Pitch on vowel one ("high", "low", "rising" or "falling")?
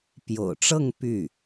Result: low